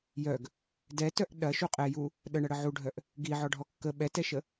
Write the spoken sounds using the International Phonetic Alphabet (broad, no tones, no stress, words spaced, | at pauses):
jœɡ | dɛtœʔ ɗɐʃu qʼɛju | ɗəɳɐɽə ʕuɖʱœʔ | ɡiʕɔɖʱɔ kːə ɓɛtɛʃə